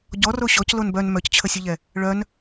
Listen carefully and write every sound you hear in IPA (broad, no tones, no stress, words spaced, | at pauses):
ɟɔro ɕɔc lonbœn mœct͡ɕʰəsʲuʎɛ | ɭœn